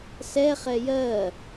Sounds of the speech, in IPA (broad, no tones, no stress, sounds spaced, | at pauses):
s ɛ χ ɛ j ɜ